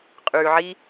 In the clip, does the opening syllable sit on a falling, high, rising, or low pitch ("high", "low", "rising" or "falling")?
low